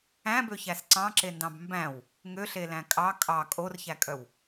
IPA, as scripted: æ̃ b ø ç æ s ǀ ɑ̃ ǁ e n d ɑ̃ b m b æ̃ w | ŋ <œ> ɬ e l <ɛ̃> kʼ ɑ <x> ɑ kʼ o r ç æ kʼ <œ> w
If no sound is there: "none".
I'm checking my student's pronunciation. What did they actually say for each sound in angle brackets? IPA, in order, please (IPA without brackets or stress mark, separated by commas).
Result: ø, æ̃, kʼ, œ